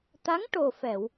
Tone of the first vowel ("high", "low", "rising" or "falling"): rising